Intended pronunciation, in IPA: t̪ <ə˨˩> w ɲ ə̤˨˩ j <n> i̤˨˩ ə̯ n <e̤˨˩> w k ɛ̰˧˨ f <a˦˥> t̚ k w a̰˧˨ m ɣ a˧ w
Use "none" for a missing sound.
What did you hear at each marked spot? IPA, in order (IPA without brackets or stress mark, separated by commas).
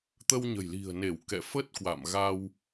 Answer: ə˧, l, e˧˩, ə˦˥